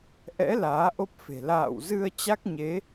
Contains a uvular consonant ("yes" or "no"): no